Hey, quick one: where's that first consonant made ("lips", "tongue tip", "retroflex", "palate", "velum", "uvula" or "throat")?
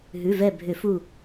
throat